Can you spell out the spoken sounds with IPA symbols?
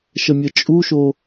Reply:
ʃ ə mʲ ə t͡ʃʼ u ʃ o

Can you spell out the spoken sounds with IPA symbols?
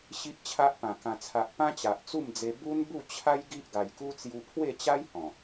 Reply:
ɕ i˦ ʔ t͡ɕʰ a˦ ʔ p ã˨˩ k ã˨˩ t͡sʰ a˨ ʔ p ã˦ t͡ɕ a˨ ʔ t͡s u˥˧ m d͡z e˧ b u˦ n b u˥˧ t͡ɕʰ a˦ j ɡ i˦ ʔ ɡ a˨˩ j k u˦ t͡s j u˧ pʰ w e˥˧ t͡ɕ a˦ j h ɔ̃˨˩

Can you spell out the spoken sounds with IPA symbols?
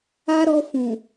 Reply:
a˦ ɾ ɔ˧ f ũ˨

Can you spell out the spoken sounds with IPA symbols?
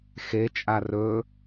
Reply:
x e t͡ʃʼ a r ɵ

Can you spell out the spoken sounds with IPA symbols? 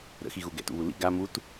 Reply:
ɾ ə̰ x i ɣ u ɡ ɛ̰ t ṵ β u l ḭ ɡ a m u t

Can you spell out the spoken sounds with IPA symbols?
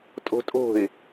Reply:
tʼ o̤ tʼ o̤ ɪ̯

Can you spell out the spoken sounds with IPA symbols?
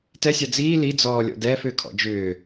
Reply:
t ɛ sʲ a d͡z iː l i d͡z ɔː lʲ ɔ̰ d ɛː f ʏː kʰ ɔ̰ d͡ʒ ʏː

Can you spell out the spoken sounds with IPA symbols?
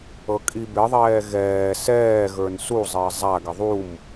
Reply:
ɤ kʼ i b ɪ ðˤ ɛː ɣ ɛː s ɛː ɣ ə˞ n s u zˤ ɪː zˤ a ɡ ɪ ðˤ u m

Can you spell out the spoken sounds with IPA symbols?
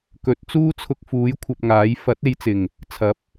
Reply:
k ɵ˨˥ t̚ t͡s uː˥ t͡sʰ ʊ˧ k̚ f uː˨˥ j kʷʰ ɐ˧ p̚ ŋ aː˨˥ j f ɐ˨˥ t̚ e˧ j t͡s ɪ˨˩ ŋ | t͡sʰ ɐ˨˥ p̚

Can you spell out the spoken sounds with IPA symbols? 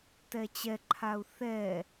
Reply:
t ɛ t͡ɕ ɛ ǃʰ a u̯ θ ɛ

